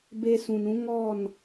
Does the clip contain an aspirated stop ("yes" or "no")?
no